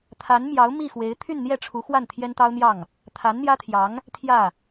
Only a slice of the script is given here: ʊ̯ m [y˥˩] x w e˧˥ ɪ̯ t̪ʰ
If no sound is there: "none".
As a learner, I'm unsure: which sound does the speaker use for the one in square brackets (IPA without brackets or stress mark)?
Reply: i˥˩